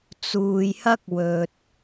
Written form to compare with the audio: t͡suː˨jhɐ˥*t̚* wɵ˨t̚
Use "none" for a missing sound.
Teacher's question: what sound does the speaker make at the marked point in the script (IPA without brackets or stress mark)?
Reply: k̚